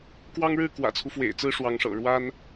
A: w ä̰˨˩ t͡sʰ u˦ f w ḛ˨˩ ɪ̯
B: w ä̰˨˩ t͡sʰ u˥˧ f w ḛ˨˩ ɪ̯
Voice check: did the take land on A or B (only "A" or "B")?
A